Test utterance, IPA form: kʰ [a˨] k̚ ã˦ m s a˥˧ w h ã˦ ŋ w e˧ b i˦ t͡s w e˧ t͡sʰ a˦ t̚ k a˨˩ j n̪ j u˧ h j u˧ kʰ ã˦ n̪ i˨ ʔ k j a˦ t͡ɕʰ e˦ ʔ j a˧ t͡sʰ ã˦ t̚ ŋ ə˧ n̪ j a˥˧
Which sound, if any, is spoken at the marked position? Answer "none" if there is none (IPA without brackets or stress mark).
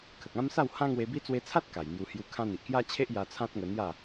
ə˨